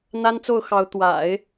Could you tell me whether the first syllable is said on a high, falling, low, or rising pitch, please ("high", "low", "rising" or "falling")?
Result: high